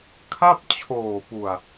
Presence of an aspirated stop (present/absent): present